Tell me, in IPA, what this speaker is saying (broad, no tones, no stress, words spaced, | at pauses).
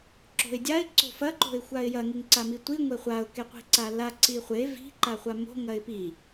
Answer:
ǁo̤ɪ̯dʲaɪ̯ ǀo̤fɐ ǃo̤ɪ̯xʷaɪ̯jɐ ŋiŋǀamitʷi ŋʷeχʷaʊ̯ keqʷi̤ǀala ǀiχʷe vi̤ ǃaχʷamo̤ ŋɐɪ̯pi